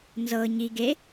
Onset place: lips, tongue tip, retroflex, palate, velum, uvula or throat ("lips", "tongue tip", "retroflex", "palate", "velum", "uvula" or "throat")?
tongue tip